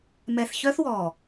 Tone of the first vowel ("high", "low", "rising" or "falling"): low